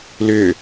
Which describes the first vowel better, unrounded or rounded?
rounded